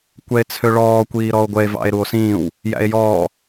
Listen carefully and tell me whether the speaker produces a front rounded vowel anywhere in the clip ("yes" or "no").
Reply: yes